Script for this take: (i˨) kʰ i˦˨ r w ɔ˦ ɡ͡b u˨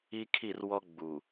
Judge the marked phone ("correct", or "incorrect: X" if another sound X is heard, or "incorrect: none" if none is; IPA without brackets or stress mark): incorrect: i˦